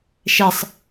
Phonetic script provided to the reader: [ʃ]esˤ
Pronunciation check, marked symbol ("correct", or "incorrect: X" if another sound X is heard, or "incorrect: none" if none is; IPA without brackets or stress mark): correct